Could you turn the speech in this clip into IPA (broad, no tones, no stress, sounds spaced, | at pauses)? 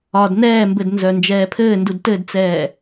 ɒ d n ɛː m b ɘ d n z œ n d͡ʒ ɛː pʰ ɘː n d u d t ɘ d t͡s ɛː